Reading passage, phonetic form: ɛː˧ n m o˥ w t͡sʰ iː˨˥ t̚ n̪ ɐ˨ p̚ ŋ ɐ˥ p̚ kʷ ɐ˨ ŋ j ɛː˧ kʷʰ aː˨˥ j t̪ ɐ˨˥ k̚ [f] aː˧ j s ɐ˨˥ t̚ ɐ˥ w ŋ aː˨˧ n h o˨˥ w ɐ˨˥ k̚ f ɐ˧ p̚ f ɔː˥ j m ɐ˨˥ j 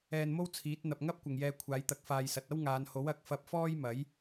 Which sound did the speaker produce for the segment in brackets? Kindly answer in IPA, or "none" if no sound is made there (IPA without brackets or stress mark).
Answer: f